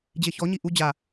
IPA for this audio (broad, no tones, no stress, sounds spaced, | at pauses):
d͡ʑ e ç ɔ ɲ i ʔ u d͡ʑ a